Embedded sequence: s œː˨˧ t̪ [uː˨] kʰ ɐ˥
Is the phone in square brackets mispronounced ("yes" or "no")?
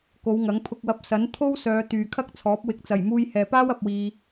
yes